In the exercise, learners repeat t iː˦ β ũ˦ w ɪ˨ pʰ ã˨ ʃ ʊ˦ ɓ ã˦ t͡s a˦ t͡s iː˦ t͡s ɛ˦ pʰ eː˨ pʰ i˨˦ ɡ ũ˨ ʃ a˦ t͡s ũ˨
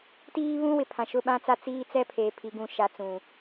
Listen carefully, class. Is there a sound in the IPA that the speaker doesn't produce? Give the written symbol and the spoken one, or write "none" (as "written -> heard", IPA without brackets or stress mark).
none